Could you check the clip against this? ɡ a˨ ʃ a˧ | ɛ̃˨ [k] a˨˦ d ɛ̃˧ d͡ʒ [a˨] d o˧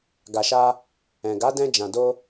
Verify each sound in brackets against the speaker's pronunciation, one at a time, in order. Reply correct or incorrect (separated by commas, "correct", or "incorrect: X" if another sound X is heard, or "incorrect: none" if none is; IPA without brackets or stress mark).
incorrect: ɡ, incorrect: ã˨